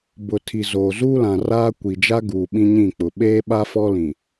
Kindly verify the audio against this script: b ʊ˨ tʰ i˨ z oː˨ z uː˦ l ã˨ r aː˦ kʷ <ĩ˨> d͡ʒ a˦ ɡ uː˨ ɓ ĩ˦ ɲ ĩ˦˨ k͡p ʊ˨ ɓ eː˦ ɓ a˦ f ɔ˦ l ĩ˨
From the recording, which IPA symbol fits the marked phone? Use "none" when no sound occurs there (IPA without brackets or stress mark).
i˨